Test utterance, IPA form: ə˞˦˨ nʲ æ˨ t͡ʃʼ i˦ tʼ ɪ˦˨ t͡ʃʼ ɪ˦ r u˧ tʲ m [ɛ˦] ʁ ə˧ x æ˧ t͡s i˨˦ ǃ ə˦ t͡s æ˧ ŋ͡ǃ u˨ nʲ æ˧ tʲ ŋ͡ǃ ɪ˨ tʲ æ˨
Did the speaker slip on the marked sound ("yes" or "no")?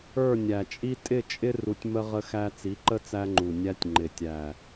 yes